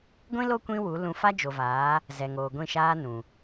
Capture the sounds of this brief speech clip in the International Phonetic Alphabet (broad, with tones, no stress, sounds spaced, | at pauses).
ɡʷ ĩ˦ l o˦ kʷ ĩ˦ w u˨˦ l ũ˧ f a˦ d͡ʒ o˨ v aː˨˦ | z ɛ˨ ŋ oː˨ ɡʷ ĩ˦˨ ʃ aː˦ n ũ˨